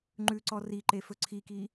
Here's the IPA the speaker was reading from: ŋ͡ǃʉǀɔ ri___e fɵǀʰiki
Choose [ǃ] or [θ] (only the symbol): ǃ